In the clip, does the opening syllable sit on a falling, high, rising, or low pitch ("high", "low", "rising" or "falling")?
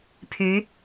rising